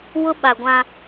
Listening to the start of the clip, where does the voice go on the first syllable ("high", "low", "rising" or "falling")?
high